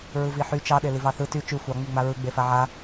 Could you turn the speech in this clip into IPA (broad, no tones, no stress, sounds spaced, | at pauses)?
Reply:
ɹ ɯ v i ħ y t͡ʃ ɑ ɗ e l i v ɑ θ ɯ t y t͡ʃ y xʷ ɑ ŋ͡m y ŋ͡m a ɹ ɯ ɡ͡b e f a ʕ a